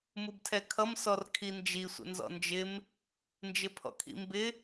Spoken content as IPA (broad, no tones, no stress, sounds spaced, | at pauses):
m u b tʰ ɛ kʰ ʌ m s ɔ r kʰ i n d͡ʒ i sʷ ə̰ n z ɔ̰ n d͡ʒ ɪ m | n d͡ʒ ɪ pʰ ɔ̰ kʰ ḭ m b ɪ